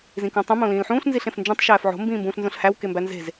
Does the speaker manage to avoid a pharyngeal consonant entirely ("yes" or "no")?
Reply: no